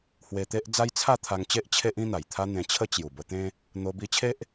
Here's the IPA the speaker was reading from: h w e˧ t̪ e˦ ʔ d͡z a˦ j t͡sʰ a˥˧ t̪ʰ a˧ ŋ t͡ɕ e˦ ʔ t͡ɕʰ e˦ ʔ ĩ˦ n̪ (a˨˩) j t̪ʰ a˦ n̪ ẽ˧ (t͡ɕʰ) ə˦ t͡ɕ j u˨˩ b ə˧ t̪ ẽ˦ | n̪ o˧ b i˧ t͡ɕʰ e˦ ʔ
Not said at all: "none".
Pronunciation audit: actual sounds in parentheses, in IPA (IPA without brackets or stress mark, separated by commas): a˨˩, t͡ɕʰ